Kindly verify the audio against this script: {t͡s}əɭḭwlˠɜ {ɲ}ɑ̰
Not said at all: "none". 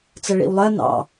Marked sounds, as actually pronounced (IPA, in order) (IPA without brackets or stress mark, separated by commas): t͡s, n